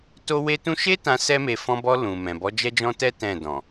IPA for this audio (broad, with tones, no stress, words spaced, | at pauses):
to˦ we˦tũ˦ ʃe˦tã˧ sɛ˦me˧ fɔ̃˧bɔ˧ lũ˨ mɛ̃˨ bɔ˨˦d͡ʒɛ˦d͡ʒɔ̃˦tɛ˦ tɛ̃˦˨dɔ̃˨